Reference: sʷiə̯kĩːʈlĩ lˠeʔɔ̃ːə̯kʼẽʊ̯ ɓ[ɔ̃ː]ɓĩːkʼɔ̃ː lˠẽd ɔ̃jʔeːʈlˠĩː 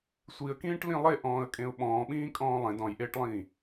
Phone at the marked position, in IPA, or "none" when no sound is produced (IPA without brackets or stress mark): ɔ̃ː